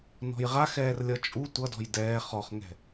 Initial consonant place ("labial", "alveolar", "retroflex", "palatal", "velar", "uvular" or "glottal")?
alveolar